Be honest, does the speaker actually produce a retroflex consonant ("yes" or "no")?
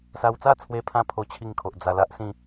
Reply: no